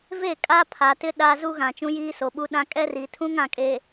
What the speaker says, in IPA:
ve˦˨kʼa˦pʰa˨tɪ˦ ɗa˦ zu˦ɣã˨ t͡ʃũ˦jiː˦so˨ ɓu˦ɗã˦ kʼɛ˦ri˨tʰũ˦ŋ ã˨kʼe˨

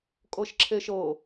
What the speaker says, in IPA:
kʼɤʃǁʰeʃɤ

